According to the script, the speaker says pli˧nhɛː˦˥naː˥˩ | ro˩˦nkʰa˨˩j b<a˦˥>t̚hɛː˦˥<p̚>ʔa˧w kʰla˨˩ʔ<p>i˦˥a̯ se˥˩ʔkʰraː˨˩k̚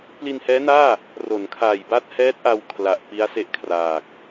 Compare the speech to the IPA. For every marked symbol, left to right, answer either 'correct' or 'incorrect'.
correct, incorrect: t̚, correct

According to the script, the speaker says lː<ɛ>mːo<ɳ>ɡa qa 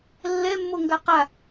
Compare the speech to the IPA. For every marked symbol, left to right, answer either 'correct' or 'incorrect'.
correct, incorrect: ŋ

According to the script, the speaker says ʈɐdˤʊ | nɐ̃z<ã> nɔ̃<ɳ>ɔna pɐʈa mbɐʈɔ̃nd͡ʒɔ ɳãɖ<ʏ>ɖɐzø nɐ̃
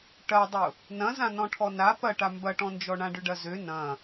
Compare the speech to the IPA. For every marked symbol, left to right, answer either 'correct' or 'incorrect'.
correct, incorrect: ʈʰ, correct

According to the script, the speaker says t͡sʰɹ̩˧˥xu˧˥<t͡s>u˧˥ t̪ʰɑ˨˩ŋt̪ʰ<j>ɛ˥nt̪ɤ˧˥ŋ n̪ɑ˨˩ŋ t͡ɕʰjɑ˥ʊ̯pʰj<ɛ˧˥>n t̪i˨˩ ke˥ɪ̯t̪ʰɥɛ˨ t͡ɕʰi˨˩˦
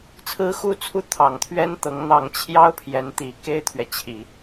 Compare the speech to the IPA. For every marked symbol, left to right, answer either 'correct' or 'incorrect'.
incorrect: t͡sʰ, incorrect: ɥ, correct

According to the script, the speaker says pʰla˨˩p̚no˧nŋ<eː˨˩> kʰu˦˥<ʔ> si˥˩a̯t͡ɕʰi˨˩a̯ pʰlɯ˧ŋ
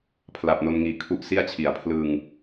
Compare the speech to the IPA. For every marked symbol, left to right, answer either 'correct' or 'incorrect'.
incorrect: iː˨˩, correct

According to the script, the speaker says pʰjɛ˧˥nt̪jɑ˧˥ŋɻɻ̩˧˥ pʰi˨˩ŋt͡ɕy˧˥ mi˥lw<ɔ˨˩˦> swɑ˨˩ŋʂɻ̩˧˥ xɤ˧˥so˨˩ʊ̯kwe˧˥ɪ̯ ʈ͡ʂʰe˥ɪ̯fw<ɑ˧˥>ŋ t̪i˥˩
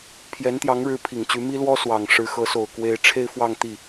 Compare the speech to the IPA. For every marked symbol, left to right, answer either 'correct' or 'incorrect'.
incorrect: ɔ˥, incorrect: ɑ˥˧

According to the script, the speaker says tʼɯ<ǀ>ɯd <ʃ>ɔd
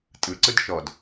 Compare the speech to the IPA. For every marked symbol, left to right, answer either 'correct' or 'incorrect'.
correct, correct

